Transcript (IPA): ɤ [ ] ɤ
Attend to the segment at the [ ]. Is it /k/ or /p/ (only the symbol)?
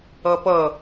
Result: p